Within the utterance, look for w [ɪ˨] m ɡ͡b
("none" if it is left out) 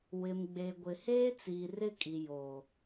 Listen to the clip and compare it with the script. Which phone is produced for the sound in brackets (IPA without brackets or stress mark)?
ɪ˨